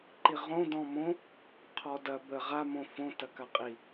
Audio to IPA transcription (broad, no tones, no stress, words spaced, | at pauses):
ǃiʁõ dɔ̃mõ | qʰɔdɐ bə ʁa mõfõ tɐkaqʼi